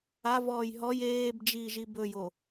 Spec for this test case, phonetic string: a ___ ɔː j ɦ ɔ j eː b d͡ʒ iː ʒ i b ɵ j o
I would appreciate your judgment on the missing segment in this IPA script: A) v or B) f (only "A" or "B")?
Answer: A